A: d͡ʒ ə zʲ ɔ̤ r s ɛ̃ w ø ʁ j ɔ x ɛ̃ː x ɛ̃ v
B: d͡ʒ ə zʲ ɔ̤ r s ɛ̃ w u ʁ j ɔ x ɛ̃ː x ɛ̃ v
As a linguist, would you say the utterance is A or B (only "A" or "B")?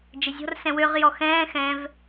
A